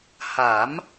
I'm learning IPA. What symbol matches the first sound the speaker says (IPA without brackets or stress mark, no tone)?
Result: h